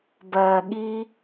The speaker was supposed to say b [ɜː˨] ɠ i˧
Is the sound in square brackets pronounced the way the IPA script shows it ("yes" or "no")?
yes